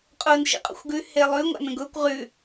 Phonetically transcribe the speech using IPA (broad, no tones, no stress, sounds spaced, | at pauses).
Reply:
qʼ ʊː n ʃ ḭ qʼ o̰ xʷ ɡ ʉ h e lˠ ʉ ŋʷ a̰ n ə̃ ɡ ʊː kʷ ʁ ʉ